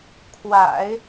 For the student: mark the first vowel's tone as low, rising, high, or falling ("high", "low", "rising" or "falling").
low